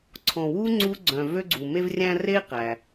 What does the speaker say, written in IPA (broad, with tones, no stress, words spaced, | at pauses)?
ǀʰɔ̃˨wu˥ ŋ͡ǀu˥ ɡ͡ǀœ̃˨ vø˦ɡ͡ǀu˩ me˦vrʲæ̃˦ re˥qæ˩